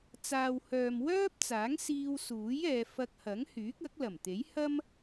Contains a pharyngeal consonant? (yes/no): no